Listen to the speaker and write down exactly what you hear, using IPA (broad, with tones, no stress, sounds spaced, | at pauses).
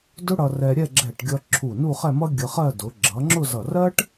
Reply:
d ʊ˥ ɽ ʌ˧ r ɛ˧ ɾʲ ɛ˥˧ ɡ͡ǁ ɛ˧˩ ʈ ɡʲ ʌ˧ ǁʰ u˧˩ n u˥˧ χ ɛ˥˧ m ʌ˥ ɡʲ ə˧ χ ɜ˥˧ d ʊ˩˧ ɡ͡ǁ ʌ˩˧ ŋ͡ǁ ʊ˥˧ z ʌ˧˩ r ɜ˥ ʈ